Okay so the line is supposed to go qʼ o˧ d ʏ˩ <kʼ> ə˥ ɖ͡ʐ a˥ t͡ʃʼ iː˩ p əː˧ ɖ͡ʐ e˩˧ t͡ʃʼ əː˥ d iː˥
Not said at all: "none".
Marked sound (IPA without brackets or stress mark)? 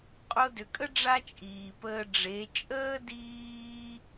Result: kʼ